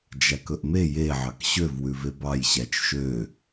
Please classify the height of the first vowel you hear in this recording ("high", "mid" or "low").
low